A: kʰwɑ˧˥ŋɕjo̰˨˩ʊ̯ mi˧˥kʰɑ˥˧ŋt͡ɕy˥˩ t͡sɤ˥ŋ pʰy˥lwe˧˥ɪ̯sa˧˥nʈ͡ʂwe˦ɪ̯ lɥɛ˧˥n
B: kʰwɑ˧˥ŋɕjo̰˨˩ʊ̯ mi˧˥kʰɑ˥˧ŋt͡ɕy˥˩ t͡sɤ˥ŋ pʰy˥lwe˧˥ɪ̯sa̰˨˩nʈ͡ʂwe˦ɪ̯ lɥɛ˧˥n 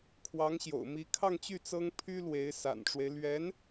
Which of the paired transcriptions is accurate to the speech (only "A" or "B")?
B